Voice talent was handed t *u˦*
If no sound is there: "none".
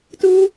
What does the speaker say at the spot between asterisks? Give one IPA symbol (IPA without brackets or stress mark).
u˦